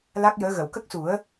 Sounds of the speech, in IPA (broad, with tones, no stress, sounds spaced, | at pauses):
l a˦˥ k̚ j əː˧˥ ɣ ə˨˩˨ w k ə˦˥ k̚ s u˨˩˦ ə̯